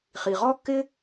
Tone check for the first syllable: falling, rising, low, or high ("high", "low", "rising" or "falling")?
low